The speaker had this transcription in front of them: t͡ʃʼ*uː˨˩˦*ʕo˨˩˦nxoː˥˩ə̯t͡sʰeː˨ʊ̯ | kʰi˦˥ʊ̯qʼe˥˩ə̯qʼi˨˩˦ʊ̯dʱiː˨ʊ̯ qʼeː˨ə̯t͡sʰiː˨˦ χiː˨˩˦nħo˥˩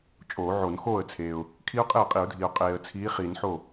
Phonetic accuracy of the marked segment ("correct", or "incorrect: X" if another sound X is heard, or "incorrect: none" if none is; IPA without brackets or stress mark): incorrect: oː˨˩˦